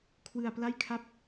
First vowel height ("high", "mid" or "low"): high